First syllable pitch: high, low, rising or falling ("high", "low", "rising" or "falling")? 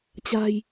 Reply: low